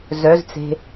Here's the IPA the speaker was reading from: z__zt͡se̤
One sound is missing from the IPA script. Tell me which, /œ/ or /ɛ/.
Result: œ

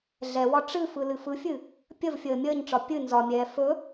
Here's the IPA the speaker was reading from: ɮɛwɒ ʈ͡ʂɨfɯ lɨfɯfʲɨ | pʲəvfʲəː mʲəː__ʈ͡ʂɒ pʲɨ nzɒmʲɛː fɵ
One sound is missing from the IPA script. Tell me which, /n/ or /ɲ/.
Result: ɲ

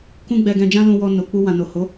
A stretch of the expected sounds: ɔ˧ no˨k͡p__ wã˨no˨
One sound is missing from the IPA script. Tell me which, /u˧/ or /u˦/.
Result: u˧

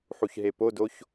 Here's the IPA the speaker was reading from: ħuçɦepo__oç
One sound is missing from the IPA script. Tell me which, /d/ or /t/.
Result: d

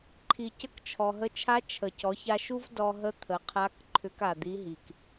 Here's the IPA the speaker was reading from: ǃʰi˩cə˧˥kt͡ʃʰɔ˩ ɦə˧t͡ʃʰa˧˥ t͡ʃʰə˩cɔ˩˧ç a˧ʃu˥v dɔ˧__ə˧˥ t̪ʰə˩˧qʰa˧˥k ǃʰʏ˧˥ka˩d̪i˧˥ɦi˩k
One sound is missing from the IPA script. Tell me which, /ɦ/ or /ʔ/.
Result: ɦ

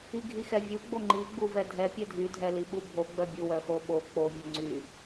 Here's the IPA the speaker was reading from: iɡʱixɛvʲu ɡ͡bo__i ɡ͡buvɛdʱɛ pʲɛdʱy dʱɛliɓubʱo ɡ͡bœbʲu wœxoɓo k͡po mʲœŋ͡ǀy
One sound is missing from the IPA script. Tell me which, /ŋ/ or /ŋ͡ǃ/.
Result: ŋ͡ǃ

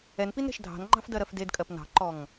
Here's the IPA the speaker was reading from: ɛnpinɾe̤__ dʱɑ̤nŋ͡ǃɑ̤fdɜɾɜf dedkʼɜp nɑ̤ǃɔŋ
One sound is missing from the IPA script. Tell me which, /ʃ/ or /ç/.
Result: ʃ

